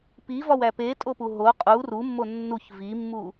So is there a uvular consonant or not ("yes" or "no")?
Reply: yes